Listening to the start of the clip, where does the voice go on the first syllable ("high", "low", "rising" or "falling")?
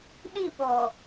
falling